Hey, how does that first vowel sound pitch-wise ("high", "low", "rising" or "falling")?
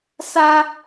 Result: high